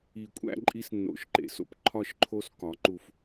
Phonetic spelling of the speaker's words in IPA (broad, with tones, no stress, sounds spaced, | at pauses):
i˨˩˦ kʷʼ æ̰˦ ǃʼ i˦ s nː o̰˨˩˦ ʃ ǃ ḛ˨ s o̰˦ p ǃʰ ɒ˦˨ ʃ ǃʰ o˦ s k ɒ˩˥ ǃ u˨ f